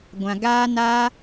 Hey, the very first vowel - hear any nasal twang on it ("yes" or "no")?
yes